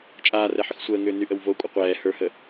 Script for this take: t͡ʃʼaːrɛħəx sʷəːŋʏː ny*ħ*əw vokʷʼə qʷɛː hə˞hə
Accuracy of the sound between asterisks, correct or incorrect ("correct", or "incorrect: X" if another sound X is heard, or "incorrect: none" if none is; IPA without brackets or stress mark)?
incorrect: ʔ